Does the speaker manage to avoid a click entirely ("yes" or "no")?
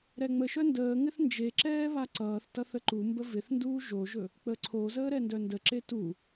no